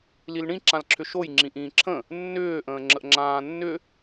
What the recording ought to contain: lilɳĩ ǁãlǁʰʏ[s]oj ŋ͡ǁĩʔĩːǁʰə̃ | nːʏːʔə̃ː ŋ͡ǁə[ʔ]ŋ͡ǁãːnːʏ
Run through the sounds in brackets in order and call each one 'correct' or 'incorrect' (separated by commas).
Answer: incorrect, correct